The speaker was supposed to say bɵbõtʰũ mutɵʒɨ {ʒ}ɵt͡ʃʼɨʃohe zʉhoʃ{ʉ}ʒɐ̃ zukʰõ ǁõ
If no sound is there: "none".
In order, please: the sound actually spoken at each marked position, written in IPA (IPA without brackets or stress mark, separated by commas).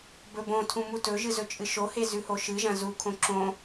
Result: z, ɨ